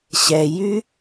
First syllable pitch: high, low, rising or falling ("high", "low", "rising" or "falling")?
low